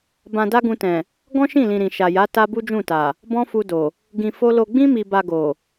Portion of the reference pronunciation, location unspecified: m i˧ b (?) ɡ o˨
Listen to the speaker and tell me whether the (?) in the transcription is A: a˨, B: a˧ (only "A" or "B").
B